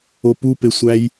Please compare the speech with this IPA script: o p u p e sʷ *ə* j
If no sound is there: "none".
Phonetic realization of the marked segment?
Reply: æ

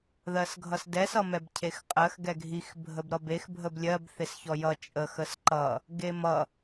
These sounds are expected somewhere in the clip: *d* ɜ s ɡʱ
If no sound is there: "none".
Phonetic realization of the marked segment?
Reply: ð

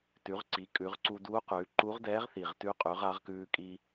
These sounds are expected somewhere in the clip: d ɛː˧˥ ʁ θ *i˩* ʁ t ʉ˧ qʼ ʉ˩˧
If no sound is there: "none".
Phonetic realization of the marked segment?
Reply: i˩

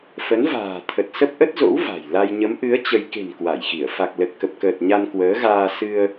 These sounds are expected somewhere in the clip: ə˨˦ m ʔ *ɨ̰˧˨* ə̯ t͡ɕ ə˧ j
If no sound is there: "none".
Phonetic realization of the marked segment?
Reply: ɨ˨˦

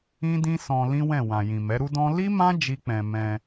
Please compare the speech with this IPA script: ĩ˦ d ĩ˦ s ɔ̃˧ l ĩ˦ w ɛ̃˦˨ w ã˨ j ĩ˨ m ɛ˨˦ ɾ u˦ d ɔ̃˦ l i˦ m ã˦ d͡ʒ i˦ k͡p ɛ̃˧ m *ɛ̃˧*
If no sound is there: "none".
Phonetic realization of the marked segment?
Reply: ɛ̃˧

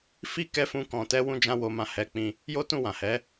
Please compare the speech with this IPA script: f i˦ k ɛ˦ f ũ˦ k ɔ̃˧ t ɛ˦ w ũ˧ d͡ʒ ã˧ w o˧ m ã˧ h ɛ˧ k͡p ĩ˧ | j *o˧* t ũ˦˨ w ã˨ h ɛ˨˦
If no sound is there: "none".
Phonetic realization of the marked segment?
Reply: o˦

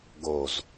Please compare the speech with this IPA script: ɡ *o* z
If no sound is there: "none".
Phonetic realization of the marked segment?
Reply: o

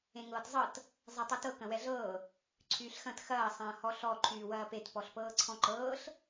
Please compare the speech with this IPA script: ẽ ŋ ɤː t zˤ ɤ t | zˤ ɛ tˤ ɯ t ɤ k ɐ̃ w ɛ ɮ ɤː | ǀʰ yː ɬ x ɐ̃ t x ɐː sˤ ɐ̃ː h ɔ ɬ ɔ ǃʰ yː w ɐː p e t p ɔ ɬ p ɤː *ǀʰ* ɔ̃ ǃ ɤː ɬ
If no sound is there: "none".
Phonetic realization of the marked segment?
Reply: ǀʰ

